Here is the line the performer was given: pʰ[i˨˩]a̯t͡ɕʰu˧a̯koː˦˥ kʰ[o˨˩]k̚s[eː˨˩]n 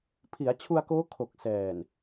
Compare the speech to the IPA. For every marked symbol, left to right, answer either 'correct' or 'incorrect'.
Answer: incorrect, correct, incorrect

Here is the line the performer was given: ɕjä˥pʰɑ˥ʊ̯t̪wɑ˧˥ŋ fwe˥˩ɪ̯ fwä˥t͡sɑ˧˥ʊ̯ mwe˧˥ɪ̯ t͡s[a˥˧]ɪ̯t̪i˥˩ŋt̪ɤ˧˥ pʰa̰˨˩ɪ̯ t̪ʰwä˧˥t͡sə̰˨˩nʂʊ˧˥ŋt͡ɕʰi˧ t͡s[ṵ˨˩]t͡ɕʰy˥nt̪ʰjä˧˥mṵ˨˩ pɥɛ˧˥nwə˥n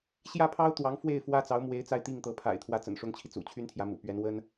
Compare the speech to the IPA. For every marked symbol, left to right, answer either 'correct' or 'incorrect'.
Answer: correct, correct

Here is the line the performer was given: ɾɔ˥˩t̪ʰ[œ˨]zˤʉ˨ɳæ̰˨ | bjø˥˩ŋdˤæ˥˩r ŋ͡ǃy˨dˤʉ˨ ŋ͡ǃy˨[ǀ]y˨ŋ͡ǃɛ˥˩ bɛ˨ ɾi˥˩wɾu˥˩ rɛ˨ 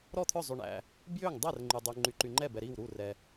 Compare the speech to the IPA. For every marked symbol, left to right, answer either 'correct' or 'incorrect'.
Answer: incorrect, incorrect

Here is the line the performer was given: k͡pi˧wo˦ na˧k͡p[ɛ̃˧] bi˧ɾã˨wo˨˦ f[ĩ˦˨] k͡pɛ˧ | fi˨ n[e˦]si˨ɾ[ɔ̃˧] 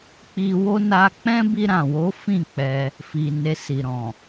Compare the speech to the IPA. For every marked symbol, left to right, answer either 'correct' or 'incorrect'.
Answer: incorrect, correct, incorrect, incorrect

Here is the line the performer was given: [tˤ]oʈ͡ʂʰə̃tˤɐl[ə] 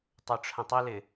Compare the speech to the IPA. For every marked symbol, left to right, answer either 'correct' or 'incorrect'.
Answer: correct, incorrect

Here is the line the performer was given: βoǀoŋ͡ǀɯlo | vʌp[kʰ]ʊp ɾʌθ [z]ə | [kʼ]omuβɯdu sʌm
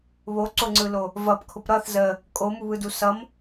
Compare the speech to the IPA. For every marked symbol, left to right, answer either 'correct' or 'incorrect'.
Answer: correct, correct, correct

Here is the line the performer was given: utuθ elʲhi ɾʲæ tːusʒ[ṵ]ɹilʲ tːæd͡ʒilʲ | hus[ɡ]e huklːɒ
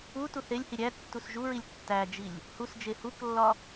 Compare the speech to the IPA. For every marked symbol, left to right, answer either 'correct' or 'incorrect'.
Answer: incorrect, incorrect

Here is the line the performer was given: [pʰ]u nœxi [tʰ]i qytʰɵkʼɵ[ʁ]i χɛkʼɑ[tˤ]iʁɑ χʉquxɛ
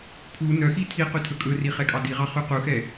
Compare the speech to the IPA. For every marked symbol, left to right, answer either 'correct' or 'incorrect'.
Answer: correct, correct, incorrect, incorrect

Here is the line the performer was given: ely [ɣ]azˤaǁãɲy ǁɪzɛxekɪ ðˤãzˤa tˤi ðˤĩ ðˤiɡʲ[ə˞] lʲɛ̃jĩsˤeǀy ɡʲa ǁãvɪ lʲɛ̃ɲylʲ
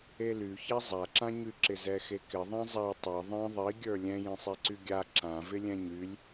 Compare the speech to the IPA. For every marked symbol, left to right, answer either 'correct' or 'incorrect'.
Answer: incorrect, correct

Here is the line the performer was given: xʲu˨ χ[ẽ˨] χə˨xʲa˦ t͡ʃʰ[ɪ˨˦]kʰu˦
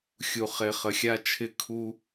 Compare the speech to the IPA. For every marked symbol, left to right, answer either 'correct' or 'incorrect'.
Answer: incorrect, incorrect

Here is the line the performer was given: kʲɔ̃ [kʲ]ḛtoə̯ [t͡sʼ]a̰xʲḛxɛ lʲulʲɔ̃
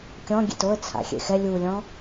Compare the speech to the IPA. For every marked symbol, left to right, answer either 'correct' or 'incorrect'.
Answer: incorrect, incorrect

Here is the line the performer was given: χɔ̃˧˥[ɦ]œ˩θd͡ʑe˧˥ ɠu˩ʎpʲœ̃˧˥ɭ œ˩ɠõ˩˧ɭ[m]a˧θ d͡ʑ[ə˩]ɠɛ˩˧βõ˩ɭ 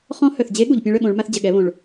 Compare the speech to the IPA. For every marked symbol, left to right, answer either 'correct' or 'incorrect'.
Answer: incorrect, correct, correct

